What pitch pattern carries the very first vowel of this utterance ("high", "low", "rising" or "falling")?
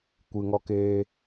low